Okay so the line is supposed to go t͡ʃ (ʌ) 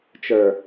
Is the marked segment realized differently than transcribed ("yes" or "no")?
yes